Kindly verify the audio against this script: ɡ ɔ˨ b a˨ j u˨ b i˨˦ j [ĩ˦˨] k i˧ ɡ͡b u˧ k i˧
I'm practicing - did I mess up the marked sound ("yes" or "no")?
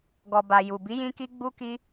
yes